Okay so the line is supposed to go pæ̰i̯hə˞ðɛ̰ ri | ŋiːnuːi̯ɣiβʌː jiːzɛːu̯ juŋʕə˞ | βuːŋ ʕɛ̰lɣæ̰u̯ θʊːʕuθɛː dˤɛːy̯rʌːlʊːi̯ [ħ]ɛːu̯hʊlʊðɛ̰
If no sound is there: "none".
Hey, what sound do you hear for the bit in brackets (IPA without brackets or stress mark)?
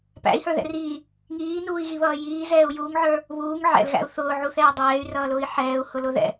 ħ